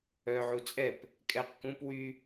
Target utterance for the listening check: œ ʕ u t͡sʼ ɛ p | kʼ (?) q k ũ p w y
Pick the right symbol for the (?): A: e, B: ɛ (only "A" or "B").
B